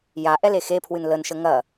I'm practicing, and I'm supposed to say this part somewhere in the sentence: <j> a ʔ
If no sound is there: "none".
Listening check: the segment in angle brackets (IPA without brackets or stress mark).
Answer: j